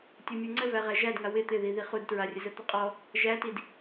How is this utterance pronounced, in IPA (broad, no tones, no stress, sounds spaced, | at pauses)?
tʲ u mʲ u ŋ͡ǀ ə v æ ʁ æ ʒ æ d ŋ a w ɪ t̪ ɪ ð i ð i χ u d t ɹ a rʲ ə z ə t̪ ɘ qʼ ɔ | ʒ æ t i d